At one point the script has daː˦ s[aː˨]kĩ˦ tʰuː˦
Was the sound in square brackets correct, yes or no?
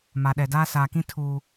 yes